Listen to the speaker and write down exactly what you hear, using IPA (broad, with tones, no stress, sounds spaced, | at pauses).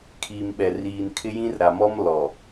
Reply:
kʰ iː˨ m ɓ ɛ˨ r iː˨ n kʰ ɪ˦ j ĩ˦ r ɾ a˨ m ɔ˦ m l ɔ˨